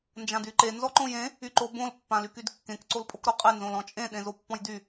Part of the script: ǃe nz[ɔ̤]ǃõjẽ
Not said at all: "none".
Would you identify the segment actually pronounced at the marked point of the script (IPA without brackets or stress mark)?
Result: ɔ